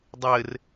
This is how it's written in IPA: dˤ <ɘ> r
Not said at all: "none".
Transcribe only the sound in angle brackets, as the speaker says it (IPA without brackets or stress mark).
ɘ